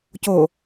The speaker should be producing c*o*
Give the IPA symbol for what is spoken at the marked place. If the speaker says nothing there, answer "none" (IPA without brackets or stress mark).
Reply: o